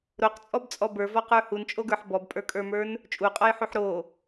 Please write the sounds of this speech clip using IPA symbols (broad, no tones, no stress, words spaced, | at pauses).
ɾoqt͡sʼɔbt͡sʼɔ bə˞vɔqə˞ hunt͡ʃʼoɡə˞ħ bɔbpʼə˞kʼə˞mə˞n | t͡ʃʼuqʼɔjħuħ ɾo